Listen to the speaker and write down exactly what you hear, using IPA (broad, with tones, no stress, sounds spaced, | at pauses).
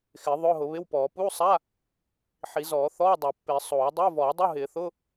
x ɪː˨˩˦ ðˤ ʊː˧˥˧ ɦ ʊ˨˩˦ β ɪ˧˥˧ w p ɔː˨˩˦ p uː˧˥˧ sˤ a˧˥˧ | ħ i˨˩˦ z ɔː˨˩˦ θ ɔː˧˥˧ dˤ o˨˩˦ pː ɪː˨˩˦ sˤ oː˨˩˦ dˤ ʊː˧˥˧ v ɔː˨˩˦ dˤ u˧˥˧ ɦ ɪː˨˩˦ θ ʊ˧˥˧